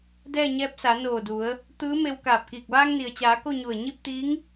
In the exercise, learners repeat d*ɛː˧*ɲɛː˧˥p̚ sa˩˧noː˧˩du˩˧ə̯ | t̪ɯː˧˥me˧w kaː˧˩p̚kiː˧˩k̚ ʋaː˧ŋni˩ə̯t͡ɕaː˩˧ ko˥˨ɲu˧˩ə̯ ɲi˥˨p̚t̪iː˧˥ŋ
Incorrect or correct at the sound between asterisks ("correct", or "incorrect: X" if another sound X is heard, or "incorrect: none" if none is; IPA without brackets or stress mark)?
incorrect: ɛː˥˨